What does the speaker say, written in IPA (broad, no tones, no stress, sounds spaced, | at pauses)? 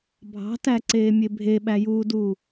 bʱ ɑ̤ t æ ǀ eː mʲ e bʱ e ɓ æ j uː d uː